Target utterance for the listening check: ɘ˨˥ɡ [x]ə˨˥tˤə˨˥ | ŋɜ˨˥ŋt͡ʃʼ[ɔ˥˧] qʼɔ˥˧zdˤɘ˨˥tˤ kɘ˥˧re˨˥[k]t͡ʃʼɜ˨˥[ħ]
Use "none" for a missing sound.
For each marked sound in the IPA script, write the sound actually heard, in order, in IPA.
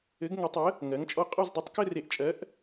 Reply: ŋ, ɔ˥˧, ʔ, ʔ

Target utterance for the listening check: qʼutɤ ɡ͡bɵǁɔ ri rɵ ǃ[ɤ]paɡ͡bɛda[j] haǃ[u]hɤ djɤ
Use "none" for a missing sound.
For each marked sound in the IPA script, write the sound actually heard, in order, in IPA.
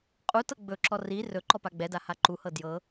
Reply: ɔ, none, u

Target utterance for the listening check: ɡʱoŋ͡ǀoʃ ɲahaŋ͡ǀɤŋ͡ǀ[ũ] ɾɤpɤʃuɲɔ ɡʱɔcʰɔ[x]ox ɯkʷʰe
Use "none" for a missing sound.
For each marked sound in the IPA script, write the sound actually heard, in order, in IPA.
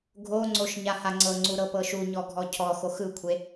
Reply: u, x

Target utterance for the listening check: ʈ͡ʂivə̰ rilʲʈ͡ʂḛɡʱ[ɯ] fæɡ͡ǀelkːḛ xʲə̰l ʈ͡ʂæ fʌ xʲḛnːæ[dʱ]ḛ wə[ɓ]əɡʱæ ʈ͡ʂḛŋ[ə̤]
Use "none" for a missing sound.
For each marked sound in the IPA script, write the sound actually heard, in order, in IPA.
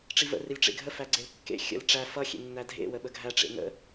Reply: ə, dʱ, ɓ, ə̰

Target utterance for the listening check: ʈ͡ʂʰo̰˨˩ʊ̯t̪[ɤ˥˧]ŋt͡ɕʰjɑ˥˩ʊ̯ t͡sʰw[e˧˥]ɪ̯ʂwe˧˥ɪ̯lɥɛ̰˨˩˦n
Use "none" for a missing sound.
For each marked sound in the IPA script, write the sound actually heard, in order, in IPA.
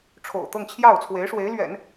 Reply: ɤ˥˧, e˧˥

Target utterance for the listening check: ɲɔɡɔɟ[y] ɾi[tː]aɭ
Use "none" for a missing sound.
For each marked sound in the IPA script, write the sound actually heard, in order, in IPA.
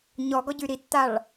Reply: y, tː

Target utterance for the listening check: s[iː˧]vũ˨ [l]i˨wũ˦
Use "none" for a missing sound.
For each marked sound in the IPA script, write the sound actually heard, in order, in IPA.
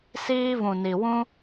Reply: iː˧, n

